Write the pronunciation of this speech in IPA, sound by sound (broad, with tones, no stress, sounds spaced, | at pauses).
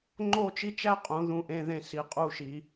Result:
ŋ͡ǃ o˥˧ t͡ʃ i˥ t͡ʃ æ˥ qʼ ũ˩˧ ð ũ˧˩ ʔ ẽ˧ ð ẽ˧˩ s i˩˧ qʼ u˧˩ ʃ i˩˧